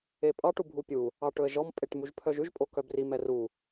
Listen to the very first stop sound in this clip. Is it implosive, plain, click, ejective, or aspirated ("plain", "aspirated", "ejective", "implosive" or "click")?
ejective